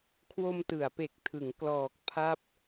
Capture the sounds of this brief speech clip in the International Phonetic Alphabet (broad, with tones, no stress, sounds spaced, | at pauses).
kʰ w o˧ m t ɯ˩˦ a̯ p e˨˩ k̚ tʰ ɯ˩˦ ŋ k l ɔː˨˩ k̚ pʰ a˦˥ p̚